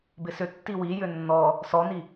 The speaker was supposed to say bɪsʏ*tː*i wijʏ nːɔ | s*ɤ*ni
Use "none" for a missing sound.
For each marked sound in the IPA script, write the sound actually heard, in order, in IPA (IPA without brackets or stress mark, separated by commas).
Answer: tː, ɔ